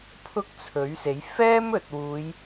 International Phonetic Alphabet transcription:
pʰʊ˥k̚t͡sʰɵ˨˥ɥse˨˥j fɛː˥mɵ˨t̚wuː˨˧j

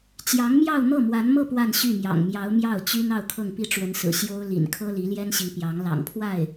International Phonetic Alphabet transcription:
t͡ɕjɑ˧˥ŋmjɑ˥˧ʊ̯ n̪ɤ˥˩mwa˧˥nmɤ˥˧ pwa˥˧n ɕy˥˩mjɑ̰˨˩ŋmjɑ˧˥ʊ̯ mjɑ˥˩ʊ̯t͡ɕy˥n ɑ˥˧ʊ̯kʰɤ˥˩ŋpi˥ ʈ͡ʂwə˧˥nsɹ̩˨˩ ɕjo˥ʊ̯ lḭ˨˩nkʰɤ˥ li˧˥ljɛ˥nɕi˧˥ pjɑ˧˥ŋ lɑ̰˨˩ŋpʰwa˥˩ɪ̯

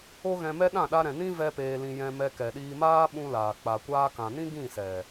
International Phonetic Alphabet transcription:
o˦ɣɛ̃˧mɛ˦ ɗã˦˨ɗa˧ɾɛ̃˨nĩ˦ vɛ˦peː˧lĩ˧ jɛ̃˧ mɛ˧kɛ˨ɗiː˧ maː˦ ɓũ˦laː˨ k͡pa˨kʷaː˧kã˨nĩ˦ ɡĩ˦˨sɛ˨

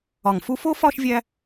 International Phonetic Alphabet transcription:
ɒ˧˩ŋfu˥ fo˥fɒ˥˧ʃ vʲæ˧

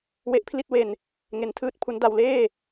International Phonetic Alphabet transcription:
we˦˥ʔpʰli˥˩t̚we˧n | ŋe˦˥ntʰɯː˥˩t̚pʰu˦˥n da˧wleː˥˩

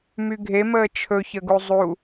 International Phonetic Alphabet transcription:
myɡʱeməː t͡ʃʰɵçəɡu zˤu

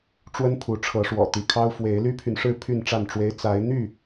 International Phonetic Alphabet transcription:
ʈ͡ʂwə˦npʰu˨˦ʈ͡ʂʰɤ˨˦ʂwɔ̰˨˩ t̪i˨˦kʰɑ˦ʊ̯ fwe˨˦ɪ̯ ly˦pʰy˨nʂɻ̩˥˨ pʰy˥˨nʈ͡ʂa˥˨nʈ͡ʂwe˦ɪ̯ t͡sa˨˦ɪ̯n̪y˥˨

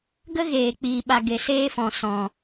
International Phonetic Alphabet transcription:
ɡə˦ɣeː˨k͡piː˨ɓa˨ ɡe˨seː˦fɔ̃˨ sɔ̃˨

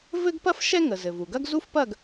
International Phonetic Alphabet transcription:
vɘ˥ɡpɐ˥f ʃɛ˥ŋə˩ zɘ˩vu˩ɡɐ˥ɡ zu˥fpɐ˥˨ɡ

